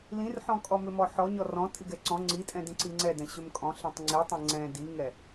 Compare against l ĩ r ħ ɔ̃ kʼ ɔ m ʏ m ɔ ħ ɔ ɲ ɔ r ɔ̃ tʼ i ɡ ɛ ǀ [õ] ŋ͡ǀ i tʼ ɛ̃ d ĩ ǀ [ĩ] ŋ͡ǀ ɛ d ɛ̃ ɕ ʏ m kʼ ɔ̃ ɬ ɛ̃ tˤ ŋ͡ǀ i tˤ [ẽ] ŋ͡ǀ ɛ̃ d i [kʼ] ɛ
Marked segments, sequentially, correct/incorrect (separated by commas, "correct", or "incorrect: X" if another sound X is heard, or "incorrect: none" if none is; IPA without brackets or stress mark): incorrect: ɔ̃, incorrect: i, incorrect: ɛ̃, incorrect: ŋ